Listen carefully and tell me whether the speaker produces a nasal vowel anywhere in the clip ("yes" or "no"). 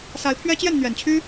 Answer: no